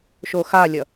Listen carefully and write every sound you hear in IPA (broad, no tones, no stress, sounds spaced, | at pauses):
ʃ o x a lʲ ʌ